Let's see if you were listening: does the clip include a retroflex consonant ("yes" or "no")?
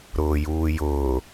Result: no